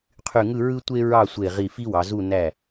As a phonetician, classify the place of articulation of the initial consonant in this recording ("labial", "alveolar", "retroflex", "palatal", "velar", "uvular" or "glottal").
uvular